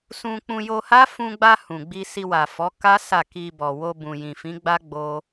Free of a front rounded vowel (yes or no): yes